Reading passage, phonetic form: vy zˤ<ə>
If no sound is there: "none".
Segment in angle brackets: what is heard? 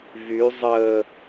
ə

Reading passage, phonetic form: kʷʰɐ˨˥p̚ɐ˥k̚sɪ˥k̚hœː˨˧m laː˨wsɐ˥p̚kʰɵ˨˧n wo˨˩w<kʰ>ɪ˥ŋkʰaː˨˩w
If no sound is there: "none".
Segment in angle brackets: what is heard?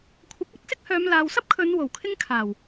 kʰ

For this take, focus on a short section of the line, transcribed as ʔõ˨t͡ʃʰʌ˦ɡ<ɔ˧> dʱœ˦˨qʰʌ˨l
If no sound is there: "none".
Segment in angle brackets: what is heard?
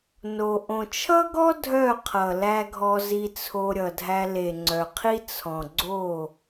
ɔ˦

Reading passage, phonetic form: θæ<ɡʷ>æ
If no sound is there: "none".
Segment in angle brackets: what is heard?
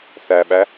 ɓ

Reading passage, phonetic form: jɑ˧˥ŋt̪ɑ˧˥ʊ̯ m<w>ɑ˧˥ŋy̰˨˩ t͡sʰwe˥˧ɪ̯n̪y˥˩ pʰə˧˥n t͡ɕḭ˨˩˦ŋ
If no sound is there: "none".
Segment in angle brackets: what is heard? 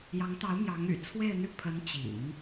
j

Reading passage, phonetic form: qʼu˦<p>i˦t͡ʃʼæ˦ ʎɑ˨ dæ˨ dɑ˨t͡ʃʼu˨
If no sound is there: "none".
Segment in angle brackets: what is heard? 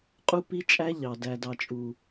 p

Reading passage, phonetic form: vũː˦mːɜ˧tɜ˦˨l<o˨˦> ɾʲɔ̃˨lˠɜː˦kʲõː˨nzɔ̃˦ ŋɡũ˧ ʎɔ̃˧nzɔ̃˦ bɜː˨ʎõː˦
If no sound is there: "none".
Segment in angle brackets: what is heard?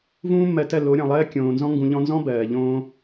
o˨˦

